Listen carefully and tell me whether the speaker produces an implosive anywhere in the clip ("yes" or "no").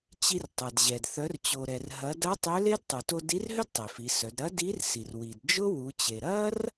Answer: no